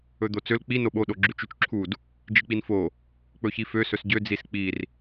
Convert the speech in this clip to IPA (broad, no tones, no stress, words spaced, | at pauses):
ɵd̪ot͡søl k͡pi noɓo ɗoɡ͡ǁʉt͡ʃʉt͡ʃǁʰud | d͡ʒik͡pinfo | k͡pɵçifø sɵsɟø d͡zisk͡pir